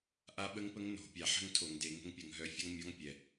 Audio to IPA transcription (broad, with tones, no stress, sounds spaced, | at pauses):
ʔ a˦˥ ɓ ə˦˥ ŋ p ə˦˥ ŋ n o̤˨˩˦ pʲ a˨˩ ħ ə̤˥˧ ŋ tʰ o˨˩˦ ŋ d e˨˩˦ ŋ ə̤˦˥ ŋ pʲ ə˨˩ ŋ ɦ œ˧˥˧ fʲ ʌ˦˥ ŋ mʲ ɔ˧˥˧ ŋ pʲ ɛ˨˩